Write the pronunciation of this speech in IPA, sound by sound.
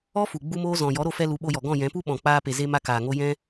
ɔ˦ f u˨ ɡ͡b u˦ m oː˦ z ɔ̃˨ j ɔ˨˦ ɾ o˧ f ɛ˧ l u˨˦ ɓ o˧ j ɔ˨ ɡ ɔ̃˦˨ j ɛ̃˨˦ p u˦ ɓ ɔ̃˨ k͡p aː˧ p e˨ z e˦ m a˦ k aː˨ ŋ o˦ j ɛ̃˦

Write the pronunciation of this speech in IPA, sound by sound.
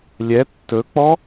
lʲ ɛ tː ɵ k͡p ɔ

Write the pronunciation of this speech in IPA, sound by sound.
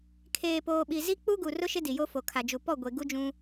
kʰ eː˨ p oː˨ ɓ i˨ z i˦ k͡p u˦ ɡ u˨ r ʊ˦ ʃ ɪ˦ d i˨ j o˦ f o˨ kʰ a˨ d͡ʒ u˨ p ɔ˦˨ ɡʷ e˨ ɡ u˦ d͡ʒ ũ˦

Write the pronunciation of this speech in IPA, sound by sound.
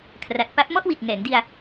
kʰ r a˨˩ t̚ p a˦˥ p̚ m ɔ˥˩ ʔ w i˨˩ t̚ ŋ ɛː˩˦ ŋ d i˧ a̯

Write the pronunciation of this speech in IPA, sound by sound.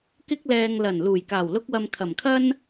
k ɪ˧ k̚ l ɛː˨ ŋ l ɐ˨˩ n l uː˨˩ j k aː˨˩ w l ʊ˧ k̚ w ɐ˨ m kʰ ɐ˨˩ m kʰ ɐ˥ n

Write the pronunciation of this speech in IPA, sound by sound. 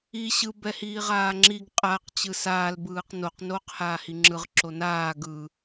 i ɕ ɯ b ɛ h iː ʁ aː ŋ͡ǁ i ɡ qʼ a q t͡ɕ ɯ s aː l b ɯː q n o q n oː q h aː h i ŋ͡ǁ ɯ ʁ ǁ o n aː ɡ ɯ

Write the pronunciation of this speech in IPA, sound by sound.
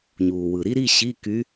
ɲ uː˩ w ɯ˩ ɾ i˥ ɾ i˧˥˧ ɕ i˧˥˧ k y˧˥

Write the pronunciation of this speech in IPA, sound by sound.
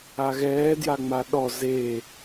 a ɣ ɛː d j a ŋ͡m a ɗ ɔ z e

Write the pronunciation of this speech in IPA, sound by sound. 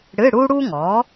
ɽ ɨ˧˥˧ ɽ u˥ ɽ u˥ ŋ ɔ˩˥

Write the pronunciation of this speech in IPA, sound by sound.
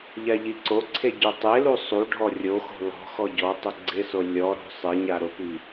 ʎ a ʎ i ǀ o ǀʰ e ɟ o tˤ e l u sˤ u ɖʱ ɔ rʲ o x o̤ l ɔ̤ x ɔ ɟ ɔ tˤ ʊ ɡ͡ǀ ɪ s o lʲ ɔ ɾ o̤ sˤ ɪ ɲ a ɾ ʊ p i

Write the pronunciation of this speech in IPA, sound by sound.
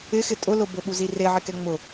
ɪ x ɪ tʼ ʊ l ʊ b ʊ ɓ u z i r e ʕ ɪ k ɛ ŋ͡m ʊ

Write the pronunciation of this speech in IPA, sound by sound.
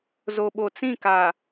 z o˨ ɓ o˨ t͡s ĩ˦˨ k a˨

